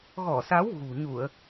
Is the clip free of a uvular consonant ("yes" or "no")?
yes